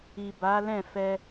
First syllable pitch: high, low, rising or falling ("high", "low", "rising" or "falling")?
low